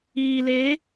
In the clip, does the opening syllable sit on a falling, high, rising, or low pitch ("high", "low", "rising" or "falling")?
low